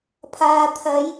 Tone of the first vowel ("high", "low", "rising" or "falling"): low